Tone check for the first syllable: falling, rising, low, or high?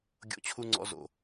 high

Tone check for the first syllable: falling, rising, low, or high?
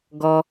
high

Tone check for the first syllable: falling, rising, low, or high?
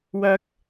high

